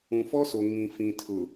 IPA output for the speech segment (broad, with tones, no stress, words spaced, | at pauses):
ũ˨fɔ˦so˨ ŋĩ˨ fĩ˨tʰʊ˨